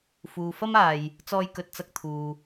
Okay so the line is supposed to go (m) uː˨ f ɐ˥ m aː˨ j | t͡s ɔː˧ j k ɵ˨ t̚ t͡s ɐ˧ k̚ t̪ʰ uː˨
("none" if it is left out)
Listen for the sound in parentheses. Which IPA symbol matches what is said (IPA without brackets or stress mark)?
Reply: f